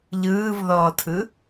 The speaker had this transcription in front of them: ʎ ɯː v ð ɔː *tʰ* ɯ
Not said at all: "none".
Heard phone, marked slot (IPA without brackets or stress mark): tʰ